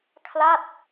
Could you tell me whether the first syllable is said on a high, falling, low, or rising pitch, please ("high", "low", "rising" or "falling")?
falling